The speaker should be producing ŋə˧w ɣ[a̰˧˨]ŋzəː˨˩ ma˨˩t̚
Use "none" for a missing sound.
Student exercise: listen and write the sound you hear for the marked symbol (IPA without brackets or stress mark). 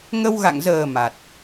a̰˧˨